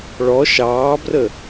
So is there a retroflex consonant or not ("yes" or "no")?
yes